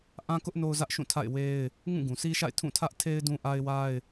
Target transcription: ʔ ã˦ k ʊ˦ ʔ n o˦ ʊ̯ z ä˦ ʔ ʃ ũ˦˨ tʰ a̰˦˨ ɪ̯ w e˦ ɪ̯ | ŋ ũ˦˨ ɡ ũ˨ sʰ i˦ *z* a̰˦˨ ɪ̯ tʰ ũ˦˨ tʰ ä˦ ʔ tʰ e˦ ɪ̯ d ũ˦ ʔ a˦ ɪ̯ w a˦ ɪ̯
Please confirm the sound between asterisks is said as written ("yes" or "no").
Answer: no